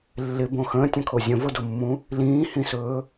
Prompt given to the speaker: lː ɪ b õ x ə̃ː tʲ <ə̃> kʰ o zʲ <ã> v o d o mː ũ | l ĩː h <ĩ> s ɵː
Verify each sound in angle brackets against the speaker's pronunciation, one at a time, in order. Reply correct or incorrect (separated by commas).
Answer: correct, incorrect, correct